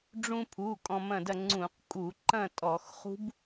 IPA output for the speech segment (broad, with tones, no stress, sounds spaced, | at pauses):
ɖ͡ʐ ũ˧ pʰ u˩˧˩ kʼ ɔ̃˧ m ɐ̃˥˨ d ɐ˥˨ ŋ͡ǀ ũ˧˩˧ q kʼ u˧˩˧ ǃ ɐ̃˥˨ tʼ ɔ˧˩˧ x χ ṳ˦˥ b